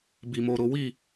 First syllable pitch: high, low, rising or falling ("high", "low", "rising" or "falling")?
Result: low